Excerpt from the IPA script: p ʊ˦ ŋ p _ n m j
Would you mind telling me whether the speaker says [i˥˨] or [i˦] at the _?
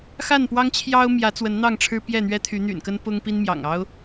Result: i˦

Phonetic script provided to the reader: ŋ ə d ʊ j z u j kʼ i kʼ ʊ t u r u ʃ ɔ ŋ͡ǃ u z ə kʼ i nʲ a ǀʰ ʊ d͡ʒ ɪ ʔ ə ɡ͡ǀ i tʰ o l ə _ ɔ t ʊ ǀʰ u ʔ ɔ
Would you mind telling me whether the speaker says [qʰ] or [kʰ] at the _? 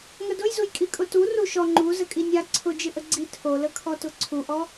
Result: kʰ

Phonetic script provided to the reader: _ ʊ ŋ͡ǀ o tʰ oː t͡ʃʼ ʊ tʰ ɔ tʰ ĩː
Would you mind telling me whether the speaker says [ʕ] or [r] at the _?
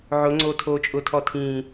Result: ʕ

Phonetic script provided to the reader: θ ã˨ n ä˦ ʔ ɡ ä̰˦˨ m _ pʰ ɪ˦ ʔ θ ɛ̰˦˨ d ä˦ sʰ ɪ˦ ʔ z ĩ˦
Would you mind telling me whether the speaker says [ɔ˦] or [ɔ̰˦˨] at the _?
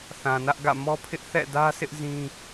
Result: ɔ˦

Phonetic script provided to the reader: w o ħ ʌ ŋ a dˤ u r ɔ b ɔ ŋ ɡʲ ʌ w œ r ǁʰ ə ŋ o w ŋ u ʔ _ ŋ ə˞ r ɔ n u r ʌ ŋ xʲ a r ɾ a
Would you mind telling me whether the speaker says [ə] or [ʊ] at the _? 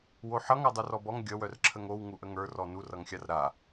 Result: ə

